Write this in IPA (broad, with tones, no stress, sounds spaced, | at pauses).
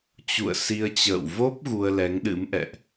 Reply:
t͡ɕ ṵ˧˨ ə̯ s i˧ ə̯ t͡ɕ ə̰ː˧˨ w v o˦˥ p̚ ɣ u˧ ə̯ l ɛ˨˦ ŋ ɗ ɨ̰˧˥ m ʔ ɛ̰˧˨ ʔ